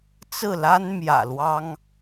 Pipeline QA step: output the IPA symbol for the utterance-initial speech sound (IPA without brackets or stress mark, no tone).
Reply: t͡s